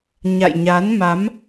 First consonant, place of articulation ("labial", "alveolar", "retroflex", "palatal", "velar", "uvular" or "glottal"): palatal